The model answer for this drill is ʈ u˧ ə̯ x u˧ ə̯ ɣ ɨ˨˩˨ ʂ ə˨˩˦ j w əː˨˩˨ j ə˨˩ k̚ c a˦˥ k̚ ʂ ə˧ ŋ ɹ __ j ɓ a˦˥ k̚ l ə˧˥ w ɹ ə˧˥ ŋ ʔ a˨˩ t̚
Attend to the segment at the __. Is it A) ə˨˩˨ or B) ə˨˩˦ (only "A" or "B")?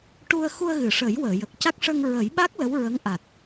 B